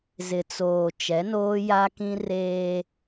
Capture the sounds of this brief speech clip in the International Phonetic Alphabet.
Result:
z ɪ˨ t͡s oː˨ t͡ʃ ɛ˨˦ n oː˦ j a˦ k ĩ˦ r eː˦

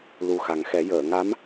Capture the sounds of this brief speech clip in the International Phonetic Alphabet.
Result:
l u˨˩ x a˨˩ ŋ x ɛ˨˩˦ j əː˨˩˨ ŋ a˧˥ m

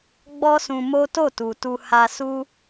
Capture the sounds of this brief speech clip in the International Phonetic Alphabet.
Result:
ɡ͡b ɔ˦ s ũ˧ m o˦ t o˦˨ t u˨ t u˧ h a˧ s u˦

